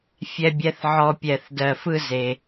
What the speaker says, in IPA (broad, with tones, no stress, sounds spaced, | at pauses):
fʲ ɛ˧ bʲ ɛ˨˥ θ ʕ ɔ˧ pʲ ɛ˧˩ θ d ɜ˧˩ f ɯ˥˧ z e˧